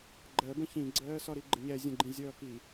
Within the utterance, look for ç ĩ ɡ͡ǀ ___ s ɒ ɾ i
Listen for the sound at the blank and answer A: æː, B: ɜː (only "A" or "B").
B